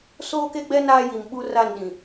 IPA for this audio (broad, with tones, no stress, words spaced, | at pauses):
soː˦ke˦ɡ͡bɛ˦ naː˦ji˨mɓu˦ ra˦˨n ɗĩ˨